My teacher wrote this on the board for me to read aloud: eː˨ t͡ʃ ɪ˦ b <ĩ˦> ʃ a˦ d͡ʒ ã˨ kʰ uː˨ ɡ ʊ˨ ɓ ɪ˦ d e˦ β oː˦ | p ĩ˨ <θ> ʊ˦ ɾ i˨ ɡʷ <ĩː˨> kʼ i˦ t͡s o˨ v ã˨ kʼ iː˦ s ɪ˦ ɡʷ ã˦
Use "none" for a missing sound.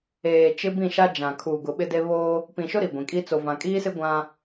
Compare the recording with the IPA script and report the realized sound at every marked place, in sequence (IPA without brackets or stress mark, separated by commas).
ĩ˦˨, ʃ, ĩ˨